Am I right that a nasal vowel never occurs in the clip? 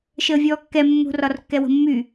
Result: yes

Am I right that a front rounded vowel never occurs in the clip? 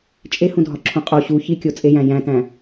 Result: yes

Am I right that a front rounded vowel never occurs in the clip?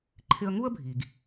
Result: yes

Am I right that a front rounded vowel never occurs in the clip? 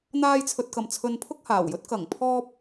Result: yes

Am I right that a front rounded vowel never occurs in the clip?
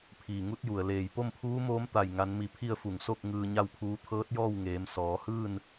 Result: yes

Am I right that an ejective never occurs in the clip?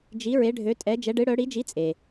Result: no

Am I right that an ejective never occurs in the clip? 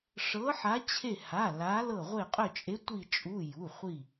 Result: no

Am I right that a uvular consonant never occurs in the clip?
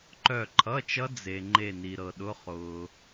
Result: no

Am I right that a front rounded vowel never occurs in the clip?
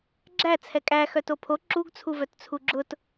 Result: no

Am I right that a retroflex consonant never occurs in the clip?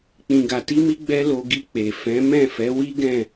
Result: yes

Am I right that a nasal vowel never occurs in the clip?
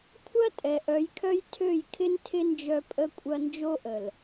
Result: yes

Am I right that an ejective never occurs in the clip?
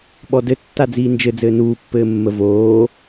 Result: yes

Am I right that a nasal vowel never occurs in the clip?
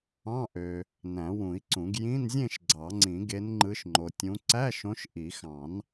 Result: no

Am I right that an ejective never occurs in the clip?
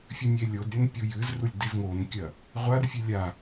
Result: yes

